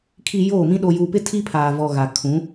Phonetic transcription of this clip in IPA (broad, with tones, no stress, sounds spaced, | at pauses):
kʰ i˨ j oː˦˨ m ĩ˦ ɗ o˨ j uː˨ p ɪ˦ tʰ i˦ pʰ aː˨ v ɔ˨ ɣ a˨ kʰ ũ˨˦